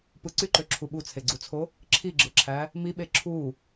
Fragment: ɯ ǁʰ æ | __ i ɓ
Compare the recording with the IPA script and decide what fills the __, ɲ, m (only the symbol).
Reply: m